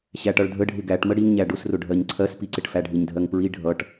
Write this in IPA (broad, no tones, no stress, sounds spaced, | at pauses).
ɕ æ ʈ ʌ ɭ dʱ ə ɖʱ ɪ ɡ æ ʈ m ə ɽ i ŋ ɲ æ ɖ ʊ s r ʊ ɖʱ ɜ ɲ ǀʰ ɜ s p i ǀ ɪ ʈ f æ ɖʱ ɪ ɲ dʱ ɜ ŋ p ɹ i ɖʱ ʌ ʈ